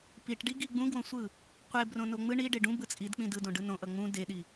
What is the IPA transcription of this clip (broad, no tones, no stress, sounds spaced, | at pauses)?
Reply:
p i ʈ ɖ i ɡ i ɡ͡b ũ ɡ w õ sʷ ɯ | qʷ e b r õ n o ŋ͡m ɯ ɳ i ɖ e ɖ ũ b ɯ t͡sʼ i d k͡p ĩ d ɯ d õ ɖ ɯ n õ ʔ ʌ ŋ͡m ũ d e ɗ i